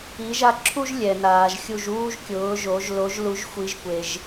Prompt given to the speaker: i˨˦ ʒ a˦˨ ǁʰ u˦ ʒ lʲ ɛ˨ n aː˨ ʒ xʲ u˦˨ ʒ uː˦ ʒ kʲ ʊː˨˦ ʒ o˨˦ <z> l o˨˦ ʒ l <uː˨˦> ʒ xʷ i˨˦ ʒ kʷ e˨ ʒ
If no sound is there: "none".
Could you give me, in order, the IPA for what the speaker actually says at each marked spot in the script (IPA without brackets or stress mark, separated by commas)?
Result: ʒ, u˨˦